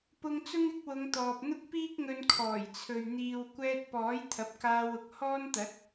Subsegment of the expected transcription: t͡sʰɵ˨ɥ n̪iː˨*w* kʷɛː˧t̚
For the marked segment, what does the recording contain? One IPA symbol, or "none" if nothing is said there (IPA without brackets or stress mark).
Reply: w